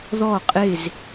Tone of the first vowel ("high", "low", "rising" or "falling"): falling